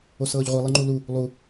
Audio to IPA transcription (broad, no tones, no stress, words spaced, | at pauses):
osɤːʎʁʷi lˠiŋ͡ǃulu | lˠu